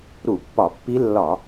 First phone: ɾ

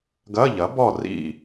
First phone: ɡ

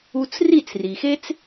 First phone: u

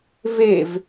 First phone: v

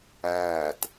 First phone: æː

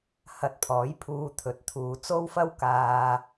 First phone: h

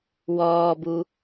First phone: w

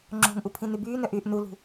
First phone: ŋ͡ǁ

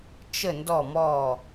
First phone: t͡ʃ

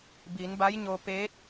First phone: b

